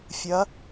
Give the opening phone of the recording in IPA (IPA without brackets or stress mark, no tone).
fʲ